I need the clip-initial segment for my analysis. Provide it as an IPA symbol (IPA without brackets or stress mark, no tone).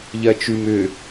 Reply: ʎ